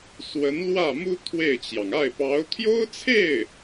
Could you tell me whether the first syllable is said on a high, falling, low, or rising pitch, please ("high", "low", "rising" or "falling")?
rising